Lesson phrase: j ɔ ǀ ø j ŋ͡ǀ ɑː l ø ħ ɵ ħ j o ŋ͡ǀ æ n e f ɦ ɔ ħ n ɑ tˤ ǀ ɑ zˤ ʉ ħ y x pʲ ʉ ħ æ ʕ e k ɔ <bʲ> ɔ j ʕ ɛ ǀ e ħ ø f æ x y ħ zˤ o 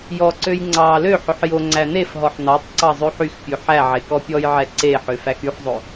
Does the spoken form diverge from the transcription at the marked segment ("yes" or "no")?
yes